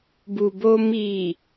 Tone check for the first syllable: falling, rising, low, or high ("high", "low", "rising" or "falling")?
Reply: low